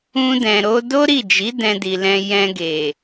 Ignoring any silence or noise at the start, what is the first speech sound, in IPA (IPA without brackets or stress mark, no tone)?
ũ